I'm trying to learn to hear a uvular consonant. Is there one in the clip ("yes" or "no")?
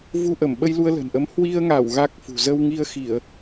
no